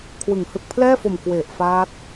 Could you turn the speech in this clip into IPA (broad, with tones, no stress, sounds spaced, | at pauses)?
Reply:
kʰ w ɯ˩˦ ŋ h ɯ˨˩ k̚ pʰ l ɛː˥˩ f o˨˩ m k w e˨˩ ʔ f aː˦˥ t̚